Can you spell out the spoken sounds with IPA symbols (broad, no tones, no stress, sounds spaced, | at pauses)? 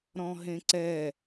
ɾ ɔ̃ ɦ ẽ ǀ ɛ